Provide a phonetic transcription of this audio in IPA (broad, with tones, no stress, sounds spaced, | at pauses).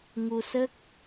ŋ u˧ s ə˦˥ k̚